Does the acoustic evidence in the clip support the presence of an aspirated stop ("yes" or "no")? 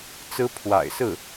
yes